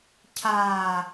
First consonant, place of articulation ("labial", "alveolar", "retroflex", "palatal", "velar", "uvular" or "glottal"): palatal